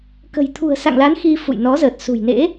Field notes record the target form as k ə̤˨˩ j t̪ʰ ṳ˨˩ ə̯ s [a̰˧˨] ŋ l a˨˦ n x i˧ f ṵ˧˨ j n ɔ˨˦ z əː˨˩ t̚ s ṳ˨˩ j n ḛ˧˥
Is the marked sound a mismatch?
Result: no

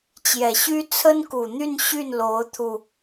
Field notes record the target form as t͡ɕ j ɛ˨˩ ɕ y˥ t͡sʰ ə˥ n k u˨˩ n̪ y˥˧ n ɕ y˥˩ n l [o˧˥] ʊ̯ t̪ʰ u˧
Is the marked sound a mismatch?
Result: no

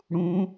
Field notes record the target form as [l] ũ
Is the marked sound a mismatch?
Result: yes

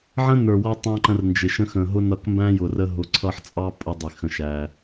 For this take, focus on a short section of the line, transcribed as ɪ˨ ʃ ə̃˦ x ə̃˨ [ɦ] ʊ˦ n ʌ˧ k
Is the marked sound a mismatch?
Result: no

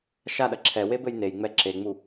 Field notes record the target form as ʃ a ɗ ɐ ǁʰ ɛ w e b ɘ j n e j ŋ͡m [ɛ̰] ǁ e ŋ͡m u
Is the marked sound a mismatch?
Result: yes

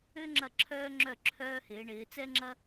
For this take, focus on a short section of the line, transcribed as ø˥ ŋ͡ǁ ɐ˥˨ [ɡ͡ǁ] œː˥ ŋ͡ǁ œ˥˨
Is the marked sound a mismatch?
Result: yes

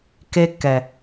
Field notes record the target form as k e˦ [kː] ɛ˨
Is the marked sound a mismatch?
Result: no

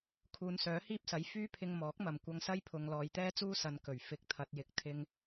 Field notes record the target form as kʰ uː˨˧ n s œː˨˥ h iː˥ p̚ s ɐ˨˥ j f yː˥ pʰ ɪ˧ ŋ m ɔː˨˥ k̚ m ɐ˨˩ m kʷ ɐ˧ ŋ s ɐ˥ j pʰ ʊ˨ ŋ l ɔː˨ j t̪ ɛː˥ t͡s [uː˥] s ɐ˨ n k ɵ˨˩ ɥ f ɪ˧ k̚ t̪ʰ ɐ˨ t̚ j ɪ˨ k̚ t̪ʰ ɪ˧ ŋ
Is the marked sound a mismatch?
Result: no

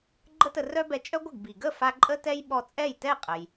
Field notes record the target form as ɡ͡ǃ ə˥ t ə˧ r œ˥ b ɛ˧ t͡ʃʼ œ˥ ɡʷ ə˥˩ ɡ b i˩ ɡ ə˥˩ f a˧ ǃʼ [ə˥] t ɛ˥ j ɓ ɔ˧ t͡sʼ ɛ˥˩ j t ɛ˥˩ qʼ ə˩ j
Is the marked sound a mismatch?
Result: no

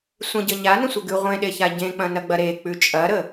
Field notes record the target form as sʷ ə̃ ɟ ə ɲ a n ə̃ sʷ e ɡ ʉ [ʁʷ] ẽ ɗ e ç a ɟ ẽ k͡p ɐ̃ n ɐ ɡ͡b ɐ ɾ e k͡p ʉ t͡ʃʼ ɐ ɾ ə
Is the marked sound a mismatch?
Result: no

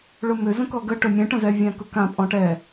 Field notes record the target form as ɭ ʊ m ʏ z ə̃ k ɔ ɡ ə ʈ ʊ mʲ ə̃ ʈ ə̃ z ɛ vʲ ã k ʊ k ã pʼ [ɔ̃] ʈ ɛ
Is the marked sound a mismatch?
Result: no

